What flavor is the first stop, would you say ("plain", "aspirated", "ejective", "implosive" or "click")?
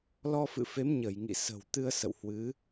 plain